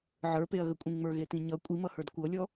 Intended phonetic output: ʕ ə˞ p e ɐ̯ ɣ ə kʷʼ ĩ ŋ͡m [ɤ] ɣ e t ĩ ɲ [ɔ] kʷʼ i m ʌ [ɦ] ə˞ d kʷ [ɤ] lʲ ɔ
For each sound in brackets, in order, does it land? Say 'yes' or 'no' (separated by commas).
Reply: no, no, no, yes